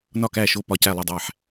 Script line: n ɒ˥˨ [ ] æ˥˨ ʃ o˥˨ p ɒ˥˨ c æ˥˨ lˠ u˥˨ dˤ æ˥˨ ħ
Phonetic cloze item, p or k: k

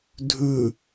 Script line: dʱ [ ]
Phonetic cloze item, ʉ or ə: ʉ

